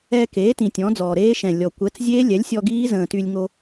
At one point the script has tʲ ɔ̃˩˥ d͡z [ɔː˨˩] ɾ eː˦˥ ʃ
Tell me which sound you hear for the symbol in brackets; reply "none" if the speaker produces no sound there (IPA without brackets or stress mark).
ɔː˨˩